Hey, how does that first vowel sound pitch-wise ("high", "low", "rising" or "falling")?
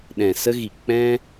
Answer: low